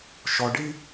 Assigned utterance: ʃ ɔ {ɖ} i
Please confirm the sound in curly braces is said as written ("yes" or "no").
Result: yes